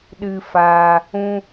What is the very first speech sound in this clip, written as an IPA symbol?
ɗ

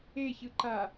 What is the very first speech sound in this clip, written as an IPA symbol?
e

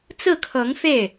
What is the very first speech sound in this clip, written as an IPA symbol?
t͡s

